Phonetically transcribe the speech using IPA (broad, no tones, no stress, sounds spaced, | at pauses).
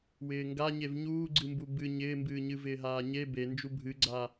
w ɪː ŋ ɡ a ɲ e v ɲ uː ɡ͡ǀ ɨ m b u b ɨ ɲ ɪː m b ɨː ɲ ɨ v ɪː ɦ aː ɲ e b e n d͡ʒ u bʱ ɨ ɡ͡ǀ a